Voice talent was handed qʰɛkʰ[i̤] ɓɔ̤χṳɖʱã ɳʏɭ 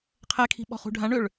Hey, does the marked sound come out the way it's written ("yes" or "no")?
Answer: yes